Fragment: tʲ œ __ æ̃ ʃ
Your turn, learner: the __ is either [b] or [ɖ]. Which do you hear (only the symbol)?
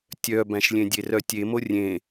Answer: b